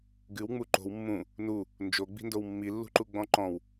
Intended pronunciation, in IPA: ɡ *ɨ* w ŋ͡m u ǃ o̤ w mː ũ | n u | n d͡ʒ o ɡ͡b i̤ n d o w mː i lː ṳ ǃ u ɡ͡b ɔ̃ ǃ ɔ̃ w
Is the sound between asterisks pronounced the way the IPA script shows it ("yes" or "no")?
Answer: yes